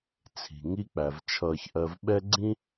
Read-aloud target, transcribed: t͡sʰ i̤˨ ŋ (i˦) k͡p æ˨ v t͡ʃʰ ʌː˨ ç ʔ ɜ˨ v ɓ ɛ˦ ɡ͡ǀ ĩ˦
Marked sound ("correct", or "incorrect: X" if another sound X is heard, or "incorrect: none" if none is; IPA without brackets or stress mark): correct